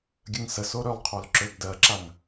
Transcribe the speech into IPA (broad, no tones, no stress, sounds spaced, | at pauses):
ɡʲ ə ŋ s ə s o ɾ ø lˠ qʰ o l ǁ ø ɡ d ɜ ǁ a ŋ